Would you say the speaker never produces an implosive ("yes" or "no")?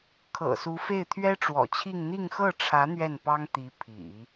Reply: yes